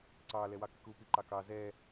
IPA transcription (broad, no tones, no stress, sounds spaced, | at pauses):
ǀ ɑ l ɛ w ɑ k ɪ k u p i ǃ ɑ k ɑ z ɛ